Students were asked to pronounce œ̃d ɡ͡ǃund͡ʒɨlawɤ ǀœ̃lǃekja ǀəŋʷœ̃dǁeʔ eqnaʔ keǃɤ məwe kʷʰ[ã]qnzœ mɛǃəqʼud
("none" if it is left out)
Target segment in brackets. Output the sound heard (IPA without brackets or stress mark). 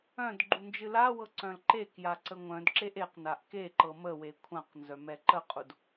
ã